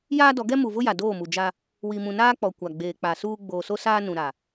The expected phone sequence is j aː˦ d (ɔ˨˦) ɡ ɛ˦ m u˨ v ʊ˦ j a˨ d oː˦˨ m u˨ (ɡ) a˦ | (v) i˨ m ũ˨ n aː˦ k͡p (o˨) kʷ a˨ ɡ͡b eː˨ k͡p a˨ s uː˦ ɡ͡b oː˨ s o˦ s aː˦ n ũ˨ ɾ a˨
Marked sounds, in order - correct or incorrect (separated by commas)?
correct, incorrect, incorrect, incorrect